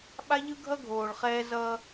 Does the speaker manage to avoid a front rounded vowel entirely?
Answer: yes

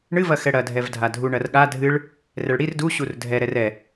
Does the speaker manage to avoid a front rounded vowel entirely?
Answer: yes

